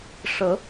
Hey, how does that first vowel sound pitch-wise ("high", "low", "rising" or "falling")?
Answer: rising